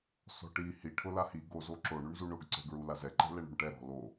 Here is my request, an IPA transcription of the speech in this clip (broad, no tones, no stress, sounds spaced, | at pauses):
s ɔ̤ ʈ i h i ʈʰ ʊ l a h i ɡ o z o ǁ o ɳ u ɳ z u ɳ ʊ ɡ ǀ ɛ̤ ɡ ɹ u l a z ɛ ǃ ɛ̤ l ɛ ɳ o̤ ɳ ʈ ɛ ɾ ɔ̤ l o